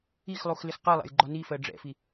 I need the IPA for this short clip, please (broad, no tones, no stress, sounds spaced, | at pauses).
i x lˠ u x l ɪ x q ɜ lˠ æ̰ j ɡ͡ǃ ɒ n i f ɜ ɖ͡ʐ ɛ̰ f i